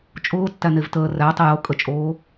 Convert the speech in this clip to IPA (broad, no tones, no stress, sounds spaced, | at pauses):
t͡ʃʼ ʊː tː æ n e v t əː r æ tˤ i j o kʼ ə t͡ʃʼ oː